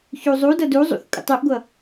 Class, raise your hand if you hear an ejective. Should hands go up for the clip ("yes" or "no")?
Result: yes